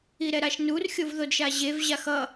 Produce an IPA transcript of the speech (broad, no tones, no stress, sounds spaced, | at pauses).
i ɾ ɛ ɾ a ʃ n u r xʲ o v ð o d ʃ a ʑ e v ʑ a x ʌ